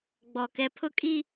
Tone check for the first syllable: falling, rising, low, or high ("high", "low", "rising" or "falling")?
low